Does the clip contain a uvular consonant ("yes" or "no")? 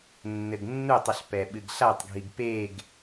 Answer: no